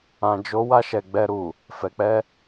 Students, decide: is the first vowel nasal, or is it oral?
nasal